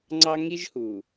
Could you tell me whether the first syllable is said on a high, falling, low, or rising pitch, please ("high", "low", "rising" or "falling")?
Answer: high